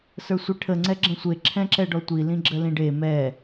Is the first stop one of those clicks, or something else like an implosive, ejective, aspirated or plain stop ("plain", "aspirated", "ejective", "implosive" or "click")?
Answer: aspirated